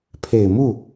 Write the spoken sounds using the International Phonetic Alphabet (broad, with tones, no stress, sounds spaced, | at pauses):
pʰ e˨˩ ɪ̯ m u˥˩